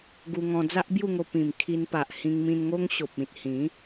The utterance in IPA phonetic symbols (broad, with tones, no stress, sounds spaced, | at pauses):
ɡ u˧ ŋ ɔ̃˧ d͡z a˦ ʔ b j u˥˧ ŋ o˧ p ĩ˨˩ m kʰ i˧ n p a˨ ʔ h ĩ˧ ŋ m ĩ˧ n ŋ o˦ ŋ ɕ o˨ p̚ ĩ˨ t̚ h ĩ˨˦